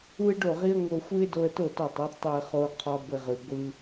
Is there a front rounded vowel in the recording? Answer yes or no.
no